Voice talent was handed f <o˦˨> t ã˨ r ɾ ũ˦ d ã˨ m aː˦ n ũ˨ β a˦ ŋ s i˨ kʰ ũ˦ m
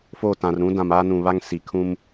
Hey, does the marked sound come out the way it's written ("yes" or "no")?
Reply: yes